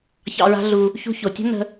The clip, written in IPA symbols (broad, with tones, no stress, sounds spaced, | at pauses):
ç ɑ̰˧ ɹ a̤˦ ɮ u˧ | ç ṳ˧ ç o˨ tʲ o̤˦ n ə̤˧